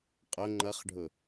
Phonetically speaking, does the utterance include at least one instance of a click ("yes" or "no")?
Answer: yes